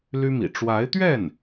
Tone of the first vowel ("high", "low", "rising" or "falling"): high